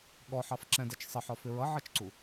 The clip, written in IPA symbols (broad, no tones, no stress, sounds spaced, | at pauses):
ɠ ɔ ħ ɑ f ǁ ɛ̃ d ɛ t͡ʃ sˤ ɪ ħ ɒ f ɪ ɹ ʌ ʕ ʌ t͡ʃ ǀ u